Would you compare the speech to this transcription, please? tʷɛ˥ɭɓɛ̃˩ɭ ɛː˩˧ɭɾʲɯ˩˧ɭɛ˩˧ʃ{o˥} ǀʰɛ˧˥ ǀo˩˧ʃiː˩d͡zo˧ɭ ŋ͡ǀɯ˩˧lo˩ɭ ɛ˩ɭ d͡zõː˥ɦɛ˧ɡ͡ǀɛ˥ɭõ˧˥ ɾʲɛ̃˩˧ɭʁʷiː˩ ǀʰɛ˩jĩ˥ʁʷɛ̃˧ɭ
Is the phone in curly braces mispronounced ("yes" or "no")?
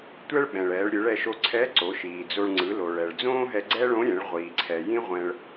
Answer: yes